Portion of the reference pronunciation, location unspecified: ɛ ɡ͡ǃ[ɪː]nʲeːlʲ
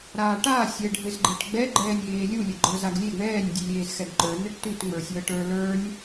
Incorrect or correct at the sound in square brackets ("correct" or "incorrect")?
incorrect